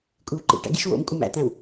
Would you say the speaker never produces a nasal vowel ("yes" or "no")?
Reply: no